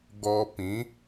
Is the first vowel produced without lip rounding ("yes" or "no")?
no